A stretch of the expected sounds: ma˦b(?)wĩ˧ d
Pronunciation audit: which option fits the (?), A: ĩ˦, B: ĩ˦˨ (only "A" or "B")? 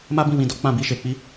B